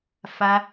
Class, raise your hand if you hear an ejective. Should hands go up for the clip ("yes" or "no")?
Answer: no